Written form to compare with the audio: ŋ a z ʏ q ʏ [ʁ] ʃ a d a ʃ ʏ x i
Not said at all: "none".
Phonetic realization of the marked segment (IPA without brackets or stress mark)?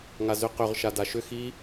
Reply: ʁ